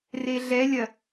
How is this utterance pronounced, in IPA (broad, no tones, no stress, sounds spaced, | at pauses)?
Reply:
r e ɮ ɛ lʲ ɐ